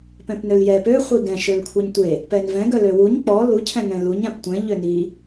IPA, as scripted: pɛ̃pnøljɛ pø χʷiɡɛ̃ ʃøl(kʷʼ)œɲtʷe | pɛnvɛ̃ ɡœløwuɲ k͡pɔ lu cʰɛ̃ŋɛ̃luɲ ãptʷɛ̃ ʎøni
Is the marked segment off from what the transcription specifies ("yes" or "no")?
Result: yes